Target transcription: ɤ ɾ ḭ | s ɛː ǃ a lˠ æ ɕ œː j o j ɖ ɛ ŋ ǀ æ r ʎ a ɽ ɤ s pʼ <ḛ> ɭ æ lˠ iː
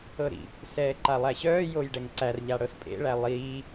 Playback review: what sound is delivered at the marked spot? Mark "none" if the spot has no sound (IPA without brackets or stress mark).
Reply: ḛ